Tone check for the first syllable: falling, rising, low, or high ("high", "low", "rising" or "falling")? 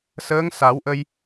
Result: rising